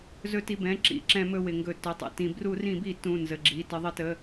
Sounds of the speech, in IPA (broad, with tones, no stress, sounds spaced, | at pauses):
z ɵ˧˩˧ t i˩˧˩ b ɛ̃˩˧˩ ǁ ḭ˩˧˩ ǁ ɛ̃˧˩˧ m ɵ˩˧˩ w ɪ˧˩˧ ŋ ɡ ɵ˧˩˧ t ɵ˩˧˩ tˤ ə̰˩˧˩ t ĩ˧˩˧ b r u˧˩˧ r ĩ˧˩˧ b i˧˩˧ t ũ˩˧˩ n z ə˩˧˩ ɡ͡ǁ i˩˧˩ t ə˧˩˧ ðˤ ɪ˧˩˧ t ə˩˧˩